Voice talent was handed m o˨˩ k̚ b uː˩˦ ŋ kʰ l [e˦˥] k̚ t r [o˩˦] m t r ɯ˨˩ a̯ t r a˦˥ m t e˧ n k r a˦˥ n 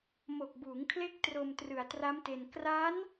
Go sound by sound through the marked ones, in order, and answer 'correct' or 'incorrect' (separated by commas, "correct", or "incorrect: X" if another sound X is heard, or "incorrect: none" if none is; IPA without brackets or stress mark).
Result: correct, incorrect: o˧